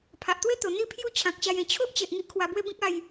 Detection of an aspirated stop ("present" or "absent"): present